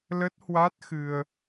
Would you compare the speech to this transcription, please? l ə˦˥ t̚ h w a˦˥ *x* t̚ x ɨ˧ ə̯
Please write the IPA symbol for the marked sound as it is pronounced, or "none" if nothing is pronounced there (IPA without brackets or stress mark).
none